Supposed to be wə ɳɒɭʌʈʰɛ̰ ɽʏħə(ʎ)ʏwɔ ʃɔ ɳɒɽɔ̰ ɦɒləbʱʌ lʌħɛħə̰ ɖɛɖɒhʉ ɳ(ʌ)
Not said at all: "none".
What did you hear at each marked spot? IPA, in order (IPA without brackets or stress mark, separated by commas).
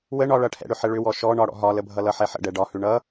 ɭ, ʌ